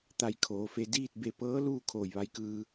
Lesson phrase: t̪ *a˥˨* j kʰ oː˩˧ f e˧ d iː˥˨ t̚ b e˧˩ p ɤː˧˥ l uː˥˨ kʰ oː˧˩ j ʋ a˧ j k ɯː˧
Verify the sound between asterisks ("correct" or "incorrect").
incorrect